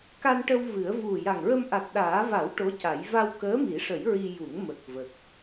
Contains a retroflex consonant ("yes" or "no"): yes